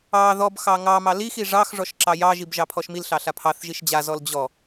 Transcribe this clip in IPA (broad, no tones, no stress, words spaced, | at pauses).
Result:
ɑ ðɔbxɑ ŋɑmɑ lixi ʐɑxʐɔʃ ǁɑjɑʒib ʒɑpʰɔʃmilɬɑ ɬapʰɑθʒiʃ d͡ʑazɔl d͡ʑɔ